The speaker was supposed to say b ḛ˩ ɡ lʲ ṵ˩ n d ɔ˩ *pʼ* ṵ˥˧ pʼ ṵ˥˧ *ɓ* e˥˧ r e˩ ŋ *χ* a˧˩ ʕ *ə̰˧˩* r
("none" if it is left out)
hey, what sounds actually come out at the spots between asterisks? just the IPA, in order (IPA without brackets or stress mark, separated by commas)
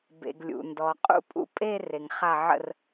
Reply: qʼ, pʼ, χ, ə̰˧˩